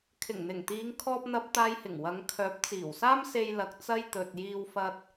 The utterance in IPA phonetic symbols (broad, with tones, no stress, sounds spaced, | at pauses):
kʰ ɪ˨˩ ŋ n̪ ɪ˨˩ ŋ t̪ iː˨˧ ŋ kʰ ɔː˧ p̚ n̪ ɐ˧ p̚ t̪ aː˧ j h ɪ˨˩ ŋ w ɐ˨˧ ŋ kʰ œː˨˥ p̚ t͡s iː˨˩ w s aː˥ m s e˧ j l ɐ˨ k̚ t͡s ɐ˥ j t̪ ɵ˨ t̚ j iː˧ w f ɐ˧ t̚